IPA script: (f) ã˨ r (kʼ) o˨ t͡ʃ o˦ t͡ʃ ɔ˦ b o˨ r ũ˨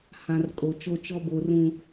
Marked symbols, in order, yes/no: no, yes

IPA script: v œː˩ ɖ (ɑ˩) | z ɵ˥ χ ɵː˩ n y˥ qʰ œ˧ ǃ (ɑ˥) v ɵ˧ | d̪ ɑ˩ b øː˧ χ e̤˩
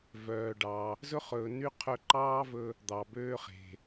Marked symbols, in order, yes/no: yes, no

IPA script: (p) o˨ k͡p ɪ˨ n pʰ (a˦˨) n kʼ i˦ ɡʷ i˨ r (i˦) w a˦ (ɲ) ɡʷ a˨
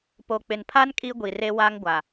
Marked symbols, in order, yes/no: yes, no, no, no

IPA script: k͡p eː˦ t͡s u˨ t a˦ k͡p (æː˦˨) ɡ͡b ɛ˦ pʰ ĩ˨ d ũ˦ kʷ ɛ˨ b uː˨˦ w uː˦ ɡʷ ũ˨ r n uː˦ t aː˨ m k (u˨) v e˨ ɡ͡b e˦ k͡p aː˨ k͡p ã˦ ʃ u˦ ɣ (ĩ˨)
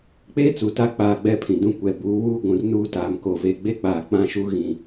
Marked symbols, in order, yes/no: no, no, yes

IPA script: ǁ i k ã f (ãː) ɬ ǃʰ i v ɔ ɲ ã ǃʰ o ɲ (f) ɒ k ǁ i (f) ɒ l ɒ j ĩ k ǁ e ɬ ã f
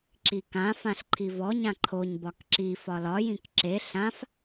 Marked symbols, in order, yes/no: no, no, yes

